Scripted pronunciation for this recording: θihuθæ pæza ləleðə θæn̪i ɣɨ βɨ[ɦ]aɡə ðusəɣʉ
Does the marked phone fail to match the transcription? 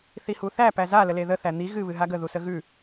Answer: no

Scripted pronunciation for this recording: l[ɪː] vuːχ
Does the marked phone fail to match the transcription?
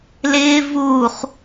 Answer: no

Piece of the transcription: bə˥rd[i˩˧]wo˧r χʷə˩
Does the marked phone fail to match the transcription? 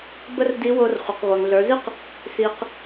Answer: yes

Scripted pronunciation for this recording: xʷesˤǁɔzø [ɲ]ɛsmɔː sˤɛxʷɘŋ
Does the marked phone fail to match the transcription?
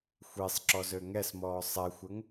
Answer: yes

